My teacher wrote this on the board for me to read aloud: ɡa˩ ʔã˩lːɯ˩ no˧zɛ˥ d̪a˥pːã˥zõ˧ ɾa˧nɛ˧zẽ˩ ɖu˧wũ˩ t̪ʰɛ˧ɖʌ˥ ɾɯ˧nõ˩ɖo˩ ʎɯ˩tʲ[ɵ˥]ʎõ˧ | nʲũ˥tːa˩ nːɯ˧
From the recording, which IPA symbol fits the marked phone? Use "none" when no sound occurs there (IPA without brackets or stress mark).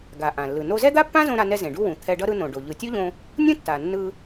o˥